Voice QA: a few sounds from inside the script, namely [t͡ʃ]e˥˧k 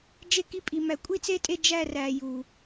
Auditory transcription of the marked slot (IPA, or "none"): d͡ʒ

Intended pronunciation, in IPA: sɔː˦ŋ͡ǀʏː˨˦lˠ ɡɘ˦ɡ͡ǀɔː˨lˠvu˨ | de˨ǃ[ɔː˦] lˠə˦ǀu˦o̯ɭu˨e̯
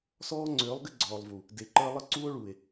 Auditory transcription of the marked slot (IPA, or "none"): əː˦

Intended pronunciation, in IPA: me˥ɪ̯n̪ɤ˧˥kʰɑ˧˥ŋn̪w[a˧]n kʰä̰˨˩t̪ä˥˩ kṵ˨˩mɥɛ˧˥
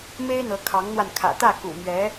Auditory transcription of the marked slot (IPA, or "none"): a˧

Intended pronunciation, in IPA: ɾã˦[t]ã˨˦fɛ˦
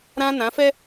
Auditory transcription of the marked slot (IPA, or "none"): n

